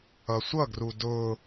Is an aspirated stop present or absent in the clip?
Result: absent